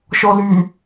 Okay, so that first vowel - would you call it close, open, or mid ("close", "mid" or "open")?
mid